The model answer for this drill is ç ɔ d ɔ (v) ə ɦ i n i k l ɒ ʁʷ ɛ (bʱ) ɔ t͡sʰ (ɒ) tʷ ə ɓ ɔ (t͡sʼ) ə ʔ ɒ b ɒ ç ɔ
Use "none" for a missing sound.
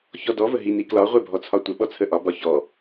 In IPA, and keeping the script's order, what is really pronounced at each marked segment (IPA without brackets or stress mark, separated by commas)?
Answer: v, bʱ, ɒ, t͡sʰ